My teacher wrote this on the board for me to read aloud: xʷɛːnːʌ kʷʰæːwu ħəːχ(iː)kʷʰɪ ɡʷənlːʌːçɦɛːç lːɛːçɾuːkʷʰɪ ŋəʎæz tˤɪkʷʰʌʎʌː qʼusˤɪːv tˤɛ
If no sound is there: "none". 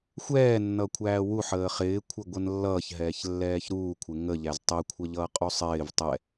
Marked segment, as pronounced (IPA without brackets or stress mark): ɪː